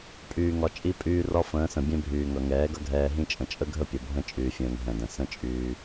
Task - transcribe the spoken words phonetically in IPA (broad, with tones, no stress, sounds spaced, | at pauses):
pʼ yː˨ ŋ ɒ˨ t͡ʃʼ i˧ pʼ yː˧ r ɒ˦ f ə̃ː˨˦ s ə̃˨ bʲ ɛ̃˦ bʱ yː˨ ŋ ʌ˨ ŋ ɛː˨˦ ɡ ʌ˦ ɡʱ ɛː˧ ɦ ĩ˦ t͡ʃʼ ə̃˨ t͡ʃʼ ə˦ ɡʱ ə˦˨ pʲ ʌ˨ bʱ ə̃˦ t͡ʃʼ yː˨ fʲ ə̃ː˨ ŋ ɦ ɛ̃˨ d ə̃˨ s ə̃˦ t͡ʃʼ yː˧